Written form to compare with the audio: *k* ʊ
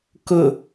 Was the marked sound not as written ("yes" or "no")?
no